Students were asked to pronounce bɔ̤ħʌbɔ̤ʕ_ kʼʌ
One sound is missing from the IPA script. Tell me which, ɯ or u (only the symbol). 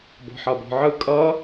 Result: ɯ